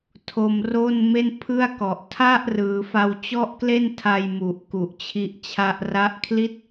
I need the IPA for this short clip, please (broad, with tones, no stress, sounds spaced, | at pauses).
tʰ o˧ m r o˥˩ n m e˥˩ n pʰ ɯ˥˩ a̯ k ɔ˨˩ ʔ tʰ a˥˩ ʔ r ɯː˩˦ f a˧ w t͡ɕ ɔ˥˩ ʔ k l e˥˩ n tʰ a˧ j m u˨˩ ʔ k u˨˩ ʔ t͡ɕʰ i˦˥ ʔ t͡ɕʰ a˥˩ ʔ r a˦˥ ʔ kʰ l i˥˩ t̚